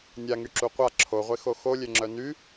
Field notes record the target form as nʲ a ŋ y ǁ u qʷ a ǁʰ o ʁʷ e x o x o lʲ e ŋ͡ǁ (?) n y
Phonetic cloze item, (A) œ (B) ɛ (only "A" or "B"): A